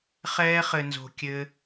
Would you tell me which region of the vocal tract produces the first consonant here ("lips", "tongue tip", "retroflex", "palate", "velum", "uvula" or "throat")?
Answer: uvula